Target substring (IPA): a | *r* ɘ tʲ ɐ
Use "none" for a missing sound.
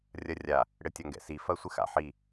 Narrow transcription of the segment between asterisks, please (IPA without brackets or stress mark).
ɽ